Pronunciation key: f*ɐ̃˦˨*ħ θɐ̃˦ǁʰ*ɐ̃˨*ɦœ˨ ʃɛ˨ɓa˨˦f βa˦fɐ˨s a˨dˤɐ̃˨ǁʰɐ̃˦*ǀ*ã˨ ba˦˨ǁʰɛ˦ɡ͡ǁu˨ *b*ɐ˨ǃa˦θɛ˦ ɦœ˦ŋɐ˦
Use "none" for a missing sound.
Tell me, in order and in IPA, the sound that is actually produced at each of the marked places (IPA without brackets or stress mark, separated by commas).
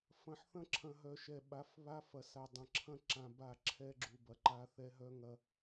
ɐ̃˨, ɐ̃˨, ǁ, b